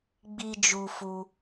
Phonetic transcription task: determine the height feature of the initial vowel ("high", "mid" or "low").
high